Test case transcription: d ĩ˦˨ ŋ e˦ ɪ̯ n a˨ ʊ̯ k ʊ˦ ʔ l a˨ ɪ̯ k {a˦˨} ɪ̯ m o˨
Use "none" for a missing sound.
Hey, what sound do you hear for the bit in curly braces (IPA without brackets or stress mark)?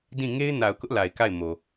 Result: a˦˨